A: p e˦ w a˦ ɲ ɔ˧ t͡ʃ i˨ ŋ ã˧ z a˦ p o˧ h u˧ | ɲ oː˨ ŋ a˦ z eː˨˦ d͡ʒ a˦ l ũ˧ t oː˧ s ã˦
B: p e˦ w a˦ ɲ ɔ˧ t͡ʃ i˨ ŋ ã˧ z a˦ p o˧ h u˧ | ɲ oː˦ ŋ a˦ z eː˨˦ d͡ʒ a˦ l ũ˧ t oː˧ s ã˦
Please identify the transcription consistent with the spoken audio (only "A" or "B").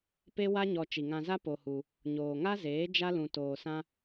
A